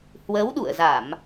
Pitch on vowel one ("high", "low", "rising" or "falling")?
rising